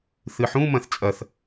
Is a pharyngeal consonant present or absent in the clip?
present